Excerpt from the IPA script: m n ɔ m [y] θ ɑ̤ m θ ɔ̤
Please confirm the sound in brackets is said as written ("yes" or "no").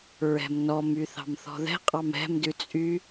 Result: yes